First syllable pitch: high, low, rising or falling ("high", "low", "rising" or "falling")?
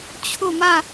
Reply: falling